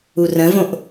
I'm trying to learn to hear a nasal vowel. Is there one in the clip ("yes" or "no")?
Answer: yes